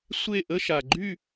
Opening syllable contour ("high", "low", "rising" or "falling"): falling